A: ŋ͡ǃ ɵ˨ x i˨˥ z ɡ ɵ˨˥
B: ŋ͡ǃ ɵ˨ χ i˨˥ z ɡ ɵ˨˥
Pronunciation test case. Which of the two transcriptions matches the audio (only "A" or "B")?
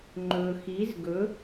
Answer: A